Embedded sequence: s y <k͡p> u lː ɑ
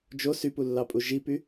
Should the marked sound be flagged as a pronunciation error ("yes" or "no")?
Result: yes